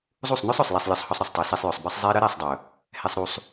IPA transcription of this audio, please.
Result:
zˤ u˦˨ sˤ n ɵ˦ sˤ œ˨ sˤ l ɛ˧ sˤ lʲ ɒ˧ sˤ h ɒ˧ sˤ ɾ ɵ˨ sˤ tˤ ɛ˨ s e˧ sˤ j ɵ˨ sˤ b ɛ˦ sˤ zˤ e˦ ɾ ə˦ ɾ ɛ˦˨ sˤ dˤ ɵ˨ | h ɛ˧ sˤ ɾ u˧ sˤ

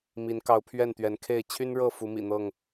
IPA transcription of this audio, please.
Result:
m i˨˦ n k ɑ˨˦ ʊ̯ pʰ ɥ ɛ˥˨ n t̪ ɥ ɛ˨˦ n kʰ e˥˨ ɪ̯ t͡ɕʰ y˦ n ɻ ɤ˥˨ f u˨˦ m ḭ˨˩ n̪ ɤ˥˨ ŋ

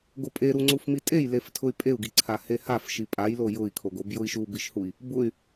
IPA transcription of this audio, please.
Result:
ɡ o pʼ e ɾ u ŋ͡ǀ u f m i tʼ e j l e f tʰ ʊ y̯ pʼ e u̯ ɡ i ǀʰ a h e h a f ʃ i pʼ a j l o j ʊ i̯ kʰ o ɡ o b j ʊ i̯ ʃ u b i ʃ h u i̯ | b ʊ y̯

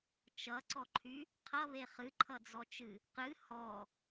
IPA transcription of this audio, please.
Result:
t͡ʃ ʌ ǀ ɔ ǃʰ y | qʰ ʌ β e χ ɨ ǃʰ ʌ d͡z ɔ t͡ʃ ɨ | q ɨ h ɔ

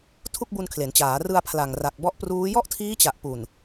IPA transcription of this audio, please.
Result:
tʰ u˥˩ k̚ b u˧ n kʰ l e˩˦ n t͡ɕ aː˩˦ r ɯ˧ a̯ pʰ l a˨˩ ŋ r a˨˩ k̚ b ɔ˦˥ ʔ p r uː˦˥ j ɔ˥˩ ʔ tʰ iː˦˥ t͡ɕ a˨˩ ʔ p u˨˩ n

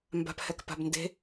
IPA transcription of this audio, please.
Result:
m b a̤ p h ɛ k p a̤ b n d e̤

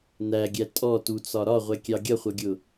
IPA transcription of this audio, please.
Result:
n̪ æ ɡʲ æ tʼ ɔ t u t͡s ɒ ɾ ɒ ʁʷ ɛ kʲ ɑ ɡʲ ʌ χʷ ʌ ɡʲ ʊ

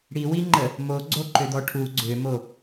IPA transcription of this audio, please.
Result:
ɽ i w i ŋ͡ǃ ə | m o ɡ͡ǀ o ǃ ø d̪ ɔ ʈʰ u ɡ͡ǀ ø m o

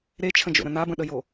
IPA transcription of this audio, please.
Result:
ɾ e t͡ʃʰ ə̃ d͡ʒ o̰ ɾ ə̃ n a b ə̃ ɗ ə j o

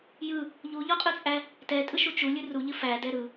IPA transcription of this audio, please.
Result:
j ɯ | ʎ u ʎ ɔ qʼ ɯ t͡sʼ æ | t ɛ tʼ ɯ ʃ u t͡ʃ u lʲ ɨ r u ʎ ɨ f æ d ɛ ɾ ɯ

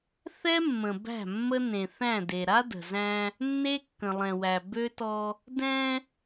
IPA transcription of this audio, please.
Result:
θ ɛ˦ mː ə̃˨ b æ̤˦˨ mː ə˦ n ẽ˨ θ æ̃˦˨ d e˨ ɾ a˦ d ə̤˨ z æ̃˦ | nː e˦ kː ə̃˨ lˠ ɛ̃˨ w æ˨ b ø˦ t ɔ˦ | d ɛ̃˦

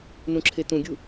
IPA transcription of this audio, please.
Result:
n ũ ǁʰ e t ũ ɡʲ u

